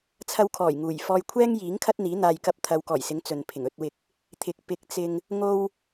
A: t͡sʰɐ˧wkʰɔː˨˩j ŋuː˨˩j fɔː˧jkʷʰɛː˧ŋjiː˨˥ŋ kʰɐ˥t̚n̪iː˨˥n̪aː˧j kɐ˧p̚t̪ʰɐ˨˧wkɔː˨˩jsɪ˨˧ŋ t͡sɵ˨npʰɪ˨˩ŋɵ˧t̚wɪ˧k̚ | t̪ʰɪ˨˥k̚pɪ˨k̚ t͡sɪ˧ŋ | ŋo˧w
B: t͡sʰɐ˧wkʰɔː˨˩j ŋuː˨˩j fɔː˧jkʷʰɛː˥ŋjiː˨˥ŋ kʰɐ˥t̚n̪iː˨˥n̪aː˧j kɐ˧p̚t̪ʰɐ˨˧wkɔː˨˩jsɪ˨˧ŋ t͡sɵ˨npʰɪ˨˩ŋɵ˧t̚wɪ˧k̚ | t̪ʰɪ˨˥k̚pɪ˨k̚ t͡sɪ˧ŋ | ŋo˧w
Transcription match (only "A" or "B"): B